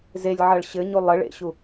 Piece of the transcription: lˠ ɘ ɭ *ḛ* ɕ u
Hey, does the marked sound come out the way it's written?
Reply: yes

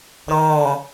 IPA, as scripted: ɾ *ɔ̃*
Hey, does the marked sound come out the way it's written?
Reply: yes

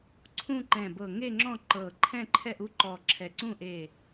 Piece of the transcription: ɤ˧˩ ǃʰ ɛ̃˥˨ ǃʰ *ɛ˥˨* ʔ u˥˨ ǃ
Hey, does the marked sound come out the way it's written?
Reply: yes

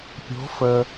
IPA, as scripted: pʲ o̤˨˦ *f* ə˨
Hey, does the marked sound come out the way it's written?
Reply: yes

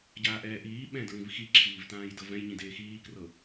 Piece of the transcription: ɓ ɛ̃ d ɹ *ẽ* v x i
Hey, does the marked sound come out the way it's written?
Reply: no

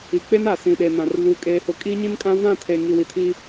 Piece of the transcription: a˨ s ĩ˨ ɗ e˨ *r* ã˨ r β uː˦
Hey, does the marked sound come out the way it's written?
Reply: no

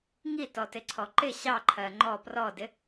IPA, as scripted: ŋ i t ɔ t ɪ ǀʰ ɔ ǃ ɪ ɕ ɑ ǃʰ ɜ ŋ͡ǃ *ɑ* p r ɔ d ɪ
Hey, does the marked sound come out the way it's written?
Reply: no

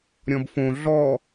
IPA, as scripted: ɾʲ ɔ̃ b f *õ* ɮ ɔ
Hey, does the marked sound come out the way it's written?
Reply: yes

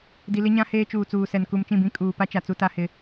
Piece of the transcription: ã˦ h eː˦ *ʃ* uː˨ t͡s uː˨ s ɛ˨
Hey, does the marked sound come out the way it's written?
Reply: no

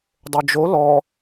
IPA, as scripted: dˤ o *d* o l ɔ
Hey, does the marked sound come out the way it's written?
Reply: no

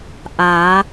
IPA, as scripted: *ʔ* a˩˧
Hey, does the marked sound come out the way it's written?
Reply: yes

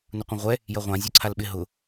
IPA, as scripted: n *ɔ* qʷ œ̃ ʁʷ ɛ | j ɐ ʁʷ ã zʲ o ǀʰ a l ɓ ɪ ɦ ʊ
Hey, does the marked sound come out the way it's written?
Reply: no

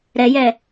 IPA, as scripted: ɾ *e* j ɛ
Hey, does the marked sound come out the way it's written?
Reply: no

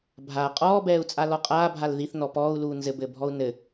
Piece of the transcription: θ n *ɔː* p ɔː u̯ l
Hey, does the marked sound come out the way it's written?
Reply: no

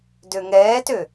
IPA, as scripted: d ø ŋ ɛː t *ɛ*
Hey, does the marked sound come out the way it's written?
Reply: no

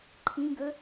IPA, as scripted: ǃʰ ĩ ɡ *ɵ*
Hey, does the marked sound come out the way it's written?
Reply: yes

